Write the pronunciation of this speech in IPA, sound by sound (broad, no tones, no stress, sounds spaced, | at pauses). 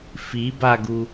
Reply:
f i b a ɡ u